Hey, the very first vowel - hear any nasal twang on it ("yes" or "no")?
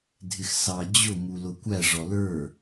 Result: no